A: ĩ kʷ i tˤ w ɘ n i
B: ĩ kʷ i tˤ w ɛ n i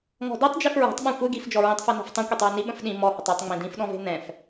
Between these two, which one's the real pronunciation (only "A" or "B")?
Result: B